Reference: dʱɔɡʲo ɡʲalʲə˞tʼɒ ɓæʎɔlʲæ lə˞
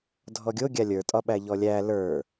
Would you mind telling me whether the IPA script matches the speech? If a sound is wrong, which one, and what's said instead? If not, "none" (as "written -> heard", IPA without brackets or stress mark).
none